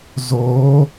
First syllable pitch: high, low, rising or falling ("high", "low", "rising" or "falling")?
rising